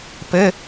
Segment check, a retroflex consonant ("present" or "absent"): absent